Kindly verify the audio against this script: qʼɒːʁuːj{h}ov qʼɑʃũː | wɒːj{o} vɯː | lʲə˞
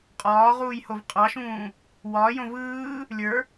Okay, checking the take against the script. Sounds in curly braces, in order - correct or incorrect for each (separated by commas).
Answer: correct, incorrect